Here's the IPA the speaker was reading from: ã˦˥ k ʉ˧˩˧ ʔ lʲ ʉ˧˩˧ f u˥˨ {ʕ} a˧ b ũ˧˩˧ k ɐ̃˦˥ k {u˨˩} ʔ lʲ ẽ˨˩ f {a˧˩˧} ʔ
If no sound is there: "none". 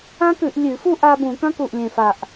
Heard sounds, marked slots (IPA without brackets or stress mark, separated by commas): ʔ, u˨˩, a˨˩